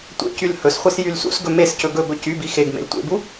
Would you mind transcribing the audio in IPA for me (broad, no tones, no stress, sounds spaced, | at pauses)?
tʷ ḛ c y l h ɵ s χʷ i s j y l s ṵ s ɡ ɵ m e s c ɵ ɡ ɵ b ɵ c y b i x e ɡ m ḛ l tʷ ḛ b u